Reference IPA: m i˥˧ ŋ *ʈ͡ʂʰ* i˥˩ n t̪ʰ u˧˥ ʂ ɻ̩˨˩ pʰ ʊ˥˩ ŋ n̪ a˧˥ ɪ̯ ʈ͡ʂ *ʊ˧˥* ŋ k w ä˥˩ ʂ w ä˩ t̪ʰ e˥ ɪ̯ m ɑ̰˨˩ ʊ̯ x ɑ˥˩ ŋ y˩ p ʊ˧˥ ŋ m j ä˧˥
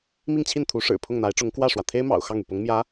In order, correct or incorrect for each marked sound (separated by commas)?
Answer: incorrect, correct